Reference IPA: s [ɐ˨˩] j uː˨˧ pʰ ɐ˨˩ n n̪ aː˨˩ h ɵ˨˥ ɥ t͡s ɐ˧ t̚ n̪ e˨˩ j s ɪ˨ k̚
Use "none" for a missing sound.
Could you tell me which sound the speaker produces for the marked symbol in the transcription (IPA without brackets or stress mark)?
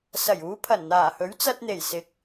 ɐ˨˩